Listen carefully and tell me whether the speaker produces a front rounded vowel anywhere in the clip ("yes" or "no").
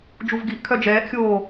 yes